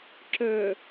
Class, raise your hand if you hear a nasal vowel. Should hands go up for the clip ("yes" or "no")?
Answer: no